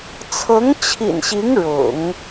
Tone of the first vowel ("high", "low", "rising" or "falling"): rising